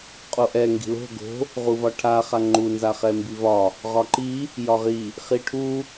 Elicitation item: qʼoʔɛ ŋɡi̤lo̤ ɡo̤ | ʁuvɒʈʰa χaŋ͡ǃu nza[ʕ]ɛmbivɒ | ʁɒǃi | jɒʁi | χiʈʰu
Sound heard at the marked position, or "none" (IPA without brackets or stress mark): χ